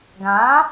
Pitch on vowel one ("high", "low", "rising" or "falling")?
rising